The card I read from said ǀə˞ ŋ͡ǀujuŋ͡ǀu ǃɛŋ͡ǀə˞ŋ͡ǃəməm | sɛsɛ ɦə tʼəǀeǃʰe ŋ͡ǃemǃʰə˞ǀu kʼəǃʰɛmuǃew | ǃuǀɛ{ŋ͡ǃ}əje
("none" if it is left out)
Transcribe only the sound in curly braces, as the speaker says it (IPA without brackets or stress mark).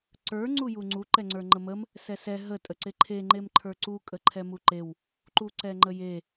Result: ŋ͡ǃ